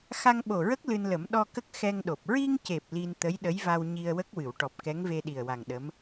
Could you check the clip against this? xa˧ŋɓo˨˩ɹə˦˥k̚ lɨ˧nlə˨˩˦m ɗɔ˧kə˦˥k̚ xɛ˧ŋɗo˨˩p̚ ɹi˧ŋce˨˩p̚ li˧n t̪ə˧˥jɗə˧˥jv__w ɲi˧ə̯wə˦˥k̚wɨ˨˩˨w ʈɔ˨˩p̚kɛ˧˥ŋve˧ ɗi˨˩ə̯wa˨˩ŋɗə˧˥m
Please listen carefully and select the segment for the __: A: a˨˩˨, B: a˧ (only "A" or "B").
B